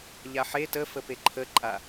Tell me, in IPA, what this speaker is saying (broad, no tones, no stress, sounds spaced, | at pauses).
ʎ a ħ e t ə f ə p e ǃʰ ə ǃʼ a